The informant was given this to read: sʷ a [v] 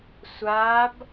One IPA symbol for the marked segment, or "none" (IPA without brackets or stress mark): b